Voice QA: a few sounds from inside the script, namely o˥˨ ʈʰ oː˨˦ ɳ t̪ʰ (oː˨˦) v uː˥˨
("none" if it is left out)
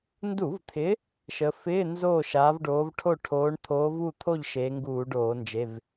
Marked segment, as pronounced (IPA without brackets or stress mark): oː˨˦